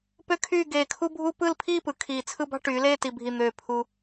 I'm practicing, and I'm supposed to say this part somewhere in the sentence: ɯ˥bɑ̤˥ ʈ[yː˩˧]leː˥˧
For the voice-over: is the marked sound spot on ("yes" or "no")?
yes